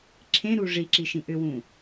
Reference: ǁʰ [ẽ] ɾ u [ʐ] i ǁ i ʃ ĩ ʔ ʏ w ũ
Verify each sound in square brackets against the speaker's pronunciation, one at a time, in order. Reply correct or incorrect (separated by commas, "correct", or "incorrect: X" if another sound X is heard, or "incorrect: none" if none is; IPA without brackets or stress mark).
correct, correct